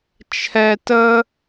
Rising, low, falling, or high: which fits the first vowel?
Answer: high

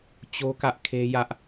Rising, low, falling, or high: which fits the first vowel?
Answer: high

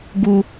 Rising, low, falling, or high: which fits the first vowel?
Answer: high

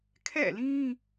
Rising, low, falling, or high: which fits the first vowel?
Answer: falling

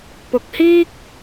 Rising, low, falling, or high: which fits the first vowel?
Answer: rising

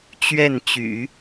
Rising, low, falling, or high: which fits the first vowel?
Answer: falling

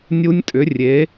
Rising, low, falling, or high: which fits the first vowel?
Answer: rising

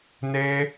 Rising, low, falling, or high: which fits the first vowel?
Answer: high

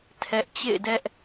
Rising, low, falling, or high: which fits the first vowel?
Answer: high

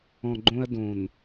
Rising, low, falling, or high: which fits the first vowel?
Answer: low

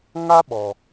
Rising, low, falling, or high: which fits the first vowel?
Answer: high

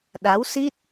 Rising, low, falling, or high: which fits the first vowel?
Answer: rising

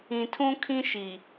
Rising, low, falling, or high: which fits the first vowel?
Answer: low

